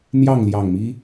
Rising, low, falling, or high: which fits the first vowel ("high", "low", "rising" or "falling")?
falling